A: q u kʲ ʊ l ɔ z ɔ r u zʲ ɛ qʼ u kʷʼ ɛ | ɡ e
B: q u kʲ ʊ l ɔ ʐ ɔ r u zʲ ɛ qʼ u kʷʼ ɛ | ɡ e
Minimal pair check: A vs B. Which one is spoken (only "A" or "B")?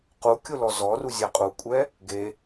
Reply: A